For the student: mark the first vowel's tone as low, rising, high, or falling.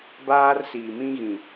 high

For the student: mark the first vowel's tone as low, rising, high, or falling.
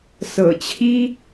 low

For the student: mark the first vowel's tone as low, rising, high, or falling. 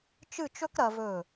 falling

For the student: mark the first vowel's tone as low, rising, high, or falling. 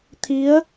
rising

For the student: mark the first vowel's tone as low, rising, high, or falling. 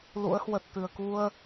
rising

